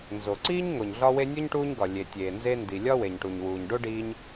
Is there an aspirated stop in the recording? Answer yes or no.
no